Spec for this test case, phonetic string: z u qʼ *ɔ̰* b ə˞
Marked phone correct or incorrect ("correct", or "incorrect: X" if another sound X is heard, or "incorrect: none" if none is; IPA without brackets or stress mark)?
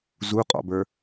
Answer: correct